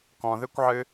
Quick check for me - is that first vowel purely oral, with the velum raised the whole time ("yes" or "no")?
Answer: no